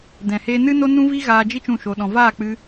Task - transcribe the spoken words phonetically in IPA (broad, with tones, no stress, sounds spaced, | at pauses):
d ɛ̃˨ h eː˧ n ɨ˦ n o˦ n ũ˦ v i˦ ɣ aː˧ d͡ʒ i˦ t͡ʃ ũ˦˨ ʃ o˧ ɗ ɔ̃˧ v aː˦˨ k͡p ɨ˧